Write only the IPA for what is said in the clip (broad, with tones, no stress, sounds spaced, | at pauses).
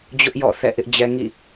d͡ʑ ʊ˦ ʔ j ɔ̰˦˨ θ ɛ̰˦˨ ʔ ɪ˦ ʔ d͡ʑ ɛ˦ ŋ ḭ˦˨